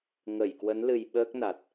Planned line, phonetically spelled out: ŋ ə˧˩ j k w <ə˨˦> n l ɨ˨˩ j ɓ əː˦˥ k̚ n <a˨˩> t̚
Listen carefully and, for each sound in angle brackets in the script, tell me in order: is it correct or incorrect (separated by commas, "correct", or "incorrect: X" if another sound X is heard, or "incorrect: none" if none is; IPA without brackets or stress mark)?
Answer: correct, correct